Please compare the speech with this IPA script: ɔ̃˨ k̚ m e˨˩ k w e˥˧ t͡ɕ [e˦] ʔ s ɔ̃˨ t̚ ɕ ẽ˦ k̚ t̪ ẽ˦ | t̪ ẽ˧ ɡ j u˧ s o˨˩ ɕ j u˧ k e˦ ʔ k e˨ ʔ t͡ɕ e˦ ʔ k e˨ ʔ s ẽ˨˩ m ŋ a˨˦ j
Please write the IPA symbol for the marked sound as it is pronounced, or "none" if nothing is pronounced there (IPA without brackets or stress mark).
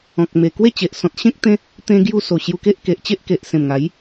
e˨